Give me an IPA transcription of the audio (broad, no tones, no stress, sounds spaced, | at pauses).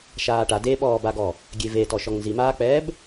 ʃ aː ʈ a d e ɓ ɔː b a ɡ ɔ | ɡʲ e v e t ɔ ʃ ɔ ŋ n z i m aː k͡p ɛː b